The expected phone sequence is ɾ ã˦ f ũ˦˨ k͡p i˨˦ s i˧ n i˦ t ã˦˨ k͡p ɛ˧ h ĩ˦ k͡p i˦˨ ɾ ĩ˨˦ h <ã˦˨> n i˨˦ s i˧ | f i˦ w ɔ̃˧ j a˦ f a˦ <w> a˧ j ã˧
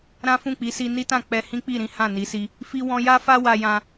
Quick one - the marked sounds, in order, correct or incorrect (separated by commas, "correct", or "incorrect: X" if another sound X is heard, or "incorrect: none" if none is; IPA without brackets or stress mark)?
correct, correct